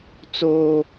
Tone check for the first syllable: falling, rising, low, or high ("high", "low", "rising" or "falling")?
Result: high